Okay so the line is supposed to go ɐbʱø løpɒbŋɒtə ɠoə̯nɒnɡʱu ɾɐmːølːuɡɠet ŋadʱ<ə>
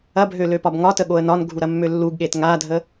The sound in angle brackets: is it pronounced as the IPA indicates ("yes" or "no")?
yes